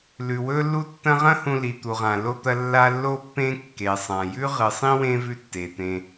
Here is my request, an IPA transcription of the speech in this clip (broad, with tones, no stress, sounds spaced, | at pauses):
l ʉ˩ w ɵ˦ lː u˦ tː ɐ̃˦ ʁ ɐ̃˥ h ũ˨ l i˩ t̪ u˩ ʁ ã˩ l o˥ t̪ ɐ˦ lː a˦ lː o˥ pː ẽ˥ kː e˩ sˤ ã˩ j ʉ˥ ʁ ɨ˨ sˤ ĩ˥ w ẽ˦ v ʉ˦ tː e˩ t̪ ẽ˨